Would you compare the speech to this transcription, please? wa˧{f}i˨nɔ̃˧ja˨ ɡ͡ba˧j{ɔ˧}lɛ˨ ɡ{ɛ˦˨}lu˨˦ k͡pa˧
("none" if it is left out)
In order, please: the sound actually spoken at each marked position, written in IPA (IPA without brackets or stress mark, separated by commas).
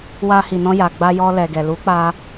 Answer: h, ɔ˧, ɛ˨